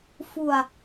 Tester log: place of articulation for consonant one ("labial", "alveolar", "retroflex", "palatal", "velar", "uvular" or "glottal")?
labial